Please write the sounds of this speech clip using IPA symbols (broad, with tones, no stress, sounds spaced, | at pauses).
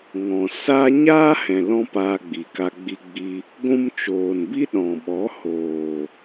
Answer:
ŋ ɔ̃˨ s a˦ ɲ aː˦ h ɛ̃˨ l ɔ̃˦ p aː˧ ɡ͡b i˨ k a˧ ɡ͡b i˧ ɡ͡b i˧ | ɡʷ ũ˧ m t͡ʃ oː˨ n b i˦ ɗ ɔ̃˨ ɓ ɔ˨˦ h oː˨